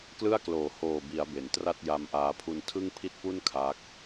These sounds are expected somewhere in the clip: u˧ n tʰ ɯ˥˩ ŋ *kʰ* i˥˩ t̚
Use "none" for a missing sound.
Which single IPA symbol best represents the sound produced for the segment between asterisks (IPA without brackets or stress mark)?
pʰ